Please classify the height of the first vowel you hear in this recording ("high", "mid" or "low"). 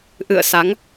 high